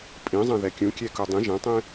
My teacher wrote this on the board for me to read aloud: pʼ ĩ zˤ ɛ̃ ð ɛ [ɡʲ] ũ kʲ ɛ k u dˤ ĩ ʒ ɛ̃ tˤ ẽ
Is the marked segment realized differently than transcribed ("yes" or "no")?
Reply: yes